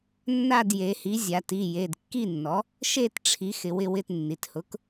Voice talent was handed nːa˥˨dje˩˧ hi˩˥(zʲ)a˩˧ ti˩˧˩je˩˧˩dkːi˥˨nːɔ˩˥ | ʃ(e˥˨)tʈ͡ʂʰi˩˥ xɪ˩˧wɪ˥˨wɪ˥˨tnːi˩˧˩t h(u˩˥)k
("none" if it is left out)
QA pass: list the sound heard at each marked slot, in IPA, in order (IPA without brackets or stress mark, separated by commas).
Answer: zʲ, e˥˨, ʊ˩˥